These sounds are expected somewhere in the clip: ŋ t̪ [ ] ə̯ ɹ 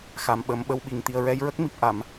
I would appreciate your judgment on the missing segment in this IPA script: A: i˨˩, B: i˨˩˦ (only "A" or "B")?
A